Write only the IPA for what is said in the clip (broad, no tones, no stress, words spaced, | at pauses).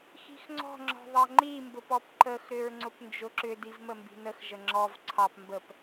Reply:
xi̤xŋ͡ǀɔ̤ŋ͡ǁɔ̤ ðˤɑŋ͡ǃimbʊp ɔpǃəxɾʏɹ ŋ͡ǀʊpnd͡ʒʊǁʏdiv məmbi̤nəxʒə ŋ͡ǁɔv ǀʰɑp mbəp